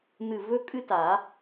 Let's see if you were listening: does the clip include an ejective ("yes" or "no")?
yes